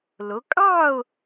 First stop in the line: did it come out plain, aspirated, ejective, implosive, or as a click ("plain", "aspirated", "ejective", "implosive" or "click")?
ejective